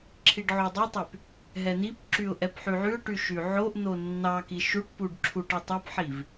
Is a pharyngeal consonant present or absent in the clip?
present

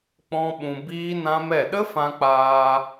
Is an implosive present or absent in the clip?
present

